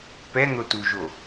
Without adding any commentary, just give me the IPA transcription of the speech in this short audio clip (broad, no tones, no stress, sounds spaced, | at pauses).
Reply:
p ɛ n̪ o t u ʒ o